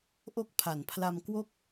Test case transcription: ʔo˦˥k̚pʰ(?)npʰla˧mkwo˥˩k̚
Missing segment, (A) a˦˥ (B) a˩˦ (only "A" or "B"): B